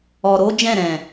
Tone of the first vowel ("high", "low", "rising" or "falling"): low